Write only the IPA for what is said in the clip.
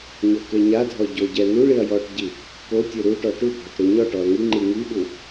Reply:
ɲ ɔ k e ɲ a dʱ ɔ ɟ o ɟ ɛ n u ɭ i ɐ̯ j ɔ ʈ ɟ i | k o tʲ u ɾ u ʈ ɔ ʈ u bʱ ɔ ʈ ɾ u ɲ ɔ ʈ ɔ ɐ̯ ŋ i ŋ͡ǃ i ŋ i ɓ u

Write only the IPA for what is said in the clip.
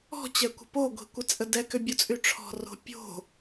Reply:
ɔ̤ t͡ɕ ɛ kʷ ə̤ p o ɡʷ i̤ kʷ ə t͡sʼ ə d ɛ k ʏ bʲ o t͡sʼ y ʈ͡ʂʰ ɔ̤ r o̤ pʲ o̤

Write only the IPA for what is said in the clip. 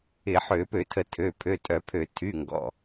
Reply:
ɪ˧˩˧ ħ ø˧˩˧ p ø˧˩˧ tʰ ə˧˩˧ tʰ ø˩˧˩ pʰ ø˩˧˩ tʼ œ˧˩˧ pʰ ø˧˩˧ tʰ y˩˧˩ ŋ ɡ ɔ̰˩˧˩

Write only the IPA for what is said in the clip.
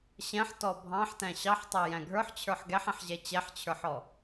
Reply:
ɕ ɛ̃ ħ t ɔ bʱ ɑ̃ ħ t æ̃ ɕ ɑ ħ tˤ æ j æ̃ ɡʱ ə˞ ħ t͡ɕʰ ə˞ ħ ɡ ɛ ħ ɛ̃ ħ ʑ ɛ t͡ɕ ɛ ħ t͡ɕʰ ə˞ ħ ɔ

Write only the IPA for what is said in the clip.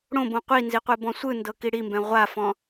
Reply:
ɽ õ b õ qʷ i n z i qʷ e b ɔ̃ sʷ ɯ n d ɤ k i ɽ i m b ɛ̃ ʁʷ a f ɔ̃

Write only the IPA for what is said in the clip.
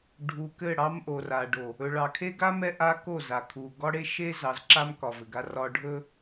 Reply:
ɖʱ u˨ k ɘ˦˨ ɽ ɑ˦ m ʔ o˨ r a˨ ɖ o˨ | ɵ˨ ɭ ɑ˨ kʰ e˦ ɡ a˦ m ɛ˦ ʔ a˦ k o˦˨ z a˨ kʰ u˨ ɡ ɒ˦ ɽ e˦ ʃ e˦ z ɑ˨˦ z ǁ a˦ m k ɒ˨ v ɘ˨ ɡ a˦ r ɒ˦ ɖʱ ɵ˦

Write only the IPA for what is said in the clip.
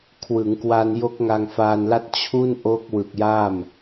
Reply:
kʰ w ɯ˩˦ ŋ k w a˧ n j o˦˥ k̚ ŋ a˧ ŋ f aː˧ n l a˥˩ t̚ t͡ɕʰ u˥˩ n ʔ o˦˥ k̚ w ɯ˨˩ k̚ j a˥˩ m

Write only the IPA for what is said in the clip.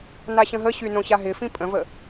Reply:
n a ɕ ə̃ ɦ ə ɕ y n õ ɕ a ɦ ɪ f ĩ pʼ ə̃ v ə

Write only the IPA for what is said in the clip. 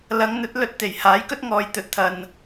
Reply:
l ɐ˨˧ ŋ n̪ ɵ˨˥ t̚ l ɵ˧ t̚ t̪ e˨˩ j h aː˨˥ j k ɵ˥ t̚ ŋ ɔː˨ j t̪ ɵ˨˥ t̚ t̪ʰ ɐ˨ n

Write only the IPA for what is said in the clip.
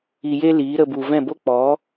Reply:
i˧ j e˦ l iː˨˦ ɾ ə˧ b u˨ v ɛ̃˦˨ b o˦ k͡p ɔ˨˦

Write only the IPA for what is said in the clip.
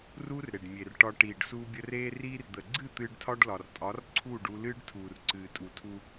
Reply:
r uː˦ r ɾ e˨ ɖ mʲ e˨ r ʈ ɒ˧ ʈ iː˨ ɖ s uː˧ bʲ ə˧ r eː˧ r iː˧ r d̪ ə˨ ɡ͡ǀ ɨ˦˨ t̪ ɨː˧ ɖ tʰ ɒ˦ ɖ l ɒ˨ r tʼ ɒ˨˦ r ǀʰ uː˦˨ ɖ u˧ l ɨː˦ ɖ tʰ uː˨ r ǀ ɨː˨ tʼ u˨ tʰ u˧

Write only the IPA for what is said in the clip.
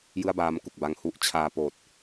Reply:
j ɯ˥˩ a̯ b aː˦˥ m k u˨˩ k̚ b a˧ ŋ h u˥˩ ʔ t͡ɕʰ aː˧ p oː˨˩ t̚

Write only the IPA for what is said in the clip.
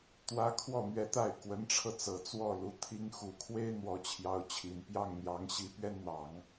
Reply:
t̪ w ä˥ kʰ w ɔ˥˩ n̪ ɥ ɛ˧˥ t̪ a˥˩ ɪ̯ k w ə˧˥ n ʈ͡ʂʰ ɤ˧ t͡s ɤ˨˩ t͡s w ɔ˥˩ l u˧˥ t̪ʰ i˧˥ ŋ x u˨˩ kʰ w e˥ ɪ̯ n̪ w ɔ˧˥ t͡ɕʰ j ɑ˧˥ ʊ̯ t͡ɕʰ i˨˩ n p j ɑ˥˩ ŋ n̪ j ɑ˧˥ ŋ ɕ i˧˥ p ɥ ɛ˥ n n̪ ɑ˨˩˦ ŋ

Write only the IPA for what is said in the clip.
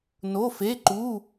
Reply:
n o˧˥˧ f e˧˥˧ ǃ u˧˥˧

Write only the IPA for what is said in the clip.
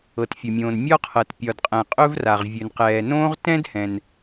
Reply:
ɤ˩ t fʲ ɵ˩ mʲ õː˩ n mʲ ɒ˥ qʰ ɤ˩ t pʲ ɒ˩ d qʼ ɛ̃˩ qʼ ɵ˥ v r a˩ ʁ vʲ ɵ˩ n q ɛː˩ n õː˥ ʁ t ɛ̃˥ d h ɛ̃˩ n

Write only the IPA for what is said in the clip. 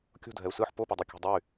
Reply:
kʲ o̤ dʱ ɛ u̯ s ɯ ħ p o p o dˤ e kʲ o̤ dˤ ʌ y̯

